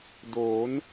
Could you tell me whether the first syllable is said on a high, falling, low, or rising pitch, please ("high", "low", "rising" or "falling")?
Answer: rising